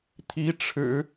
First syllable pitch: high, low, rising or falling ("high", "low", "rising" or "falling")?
rising